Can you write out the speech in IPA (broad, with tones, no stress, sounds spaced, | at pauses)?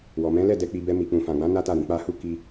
w ɔ˨ m ɛ̃˨˦ l ɛ˦˨ d ɛ˨ k͡p i˨ b ɛ˨ m i˨ k͡p ũ˨ f ã˨ ɡ͡b ã˨˦ n a˦ t a˦˨ ɾ ĩ˧ k͡p a˧ h u˦ k i˧